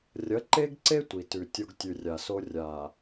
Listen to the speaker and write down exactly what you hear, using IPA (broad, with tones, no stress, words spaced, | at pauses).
rʲɐ˨˦ǃe˦ɡǀe˦ tʷi˨tʉ˨tʲo˦ɡ tʲʉ˨ rʲa˨so˦ rʲa˨